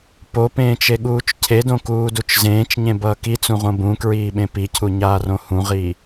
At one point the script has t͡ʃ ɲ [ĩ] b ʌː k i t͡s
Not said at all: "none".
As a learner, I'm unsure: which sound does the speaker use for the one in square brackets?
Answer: ẽ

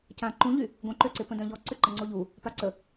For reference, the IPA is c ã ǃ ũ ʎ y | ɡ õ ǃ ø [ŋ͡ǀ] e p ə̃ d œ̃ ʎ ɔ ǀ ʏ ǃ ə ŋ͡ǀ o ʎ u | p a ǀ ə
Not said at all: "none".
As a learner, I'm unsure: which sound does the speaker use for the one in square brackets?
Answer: ǀ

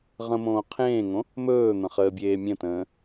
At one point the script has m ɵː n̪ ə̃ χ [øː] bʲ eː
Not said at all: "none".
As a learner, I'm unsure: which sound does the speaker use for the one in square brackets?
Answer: əː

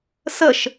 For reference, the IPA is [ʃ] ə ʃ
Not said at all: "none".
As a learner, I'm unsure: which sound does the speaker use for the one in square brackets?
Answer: s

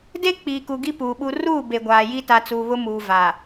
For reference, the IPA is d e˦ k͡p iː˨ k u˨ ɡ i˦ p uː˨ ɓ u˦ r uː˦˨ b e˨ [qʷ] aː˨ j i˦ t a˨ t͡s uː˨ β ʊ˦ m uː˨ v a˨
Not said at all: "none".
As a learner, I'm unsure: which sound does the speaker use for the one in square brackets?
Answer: ɡʷ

